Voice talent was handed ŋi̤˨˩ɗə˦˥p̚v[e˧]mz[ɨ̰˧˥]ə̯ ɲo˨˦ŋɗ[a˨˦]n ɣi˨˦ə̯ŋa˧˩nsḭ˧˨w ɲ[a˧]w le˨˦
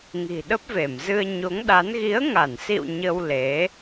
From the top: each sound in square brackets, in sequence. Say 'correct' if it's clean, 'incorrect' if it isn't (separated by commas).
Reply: incorrect, incorrect, correct, incorrect